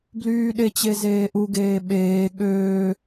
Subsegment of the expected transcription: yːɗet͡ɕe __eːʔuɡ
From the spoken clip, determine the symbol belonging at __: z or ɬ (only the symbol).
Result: z